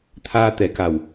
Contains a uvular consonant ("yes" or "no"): no